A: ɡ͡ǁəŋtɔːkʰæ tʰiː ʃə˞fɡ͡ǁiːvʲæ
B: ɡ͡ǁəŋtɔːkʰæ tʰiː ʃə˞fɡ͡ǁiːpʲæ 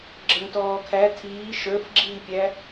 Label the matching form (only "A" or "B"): B